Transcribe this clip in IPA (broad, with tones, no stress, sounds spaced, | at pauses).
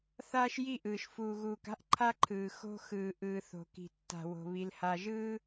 θ aː˦ ʃ j i˦˨ ʔ ɯː˨ ʃ f uː˨ ɣ uː˨ k a̤˦ ʔ ǃʰ a˦ ǃʰ ɯː˨ x o̤˦ x ɯː˨ ʔ ɯː˨ θ o̤˨ k i̤˨ tː a̤˨ w o̤˨ β i˨ l h a˨ ʒ ɯː˦